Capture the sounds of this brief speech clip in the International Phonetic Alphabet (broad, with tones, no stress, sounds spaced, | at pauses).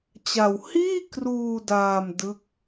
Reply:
t͡ɕ a˧ w h iː˥˩ k r uː˧ d aː˧ m d ɯ˥˩ k̚